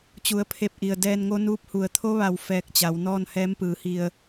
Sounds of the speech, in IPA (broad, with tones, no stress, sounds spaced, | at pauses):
t͡ɕ u˩˧ ə̯ pʰ e˧˩ p̚ ʔ i˩ ə̯ d ɛː˧ n ŋ o˧˥ n uː˧˥ p̚ h u˩ ə̯ t̪ʰ o˧˥ ʋ a˧˩ w f ɛː˧ k̚ t͡ɕ a˩˧ w n ɔː˥˨ n h ɛː˧˥ m p ɯː˩˧ h i˧˩ ə̯